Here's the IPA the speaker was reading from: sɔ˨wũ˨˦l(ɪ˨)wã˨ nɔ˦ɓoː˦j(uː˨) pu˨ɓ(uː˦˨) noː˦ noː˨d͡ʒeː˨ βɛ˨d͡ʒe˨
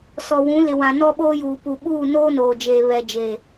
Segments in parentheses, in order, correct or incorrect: correct, correct, correct

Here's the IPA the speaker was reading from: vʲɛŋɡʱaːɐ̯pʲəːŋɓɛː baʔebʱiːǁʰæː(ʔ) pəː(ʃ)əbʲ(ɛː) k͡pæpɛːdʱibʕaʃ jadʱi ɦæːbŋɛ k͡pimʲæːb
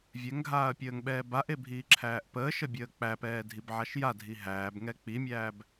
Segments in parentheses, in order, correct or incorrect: correct, correct, incorrect

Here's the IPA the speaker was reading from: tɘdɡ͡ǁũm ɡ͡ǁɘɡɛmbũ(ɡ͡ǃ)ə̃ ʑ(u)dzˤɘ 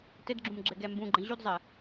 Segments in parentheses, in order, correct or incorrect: correct, correct

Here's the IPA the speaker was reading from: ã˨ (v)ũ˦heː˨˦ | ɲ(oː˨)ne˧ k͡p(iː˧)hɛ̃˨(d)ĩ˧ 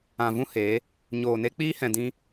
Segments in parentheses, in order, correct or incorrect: correct, correct, incorrect, correct

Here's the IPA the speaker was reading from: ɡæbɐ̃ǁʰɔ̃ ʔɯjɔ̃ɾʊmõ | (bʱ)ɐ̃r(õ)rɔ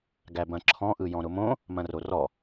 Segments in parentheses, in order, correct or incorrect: incorrect, incorrect

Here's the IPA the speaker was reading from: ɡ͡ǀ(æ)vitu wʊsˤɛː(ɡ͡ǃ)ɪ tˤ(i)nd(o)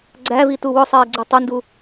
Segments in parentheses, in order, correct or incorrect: correct, incorrect, incorrect, incorrect

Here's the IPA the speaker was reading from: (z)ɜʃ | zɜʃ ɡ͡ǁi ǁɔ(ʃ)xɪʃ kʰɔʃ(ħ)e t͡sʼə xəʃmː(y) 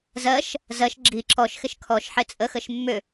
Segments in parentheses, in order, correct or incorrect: correct, correct, correct, incorrect

